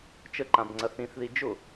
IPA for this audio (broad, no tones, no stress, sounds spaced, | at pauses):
t͡ʃ ə ǃ ã b ŋ͡ǀ ɐ θ ĩ θ ð i d͡ʒ ʊ